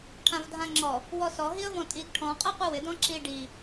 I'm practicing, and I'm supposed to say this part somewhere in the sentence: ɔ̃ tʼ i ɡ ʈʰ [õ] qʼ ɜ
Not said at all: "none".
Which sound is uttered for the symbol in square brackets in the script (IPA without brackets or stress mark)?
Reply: ɔ̃